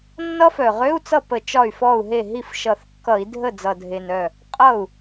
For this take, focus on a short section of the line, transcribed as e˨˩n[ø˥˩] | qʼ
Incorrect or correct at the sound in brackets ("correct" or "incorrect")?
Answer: incorrect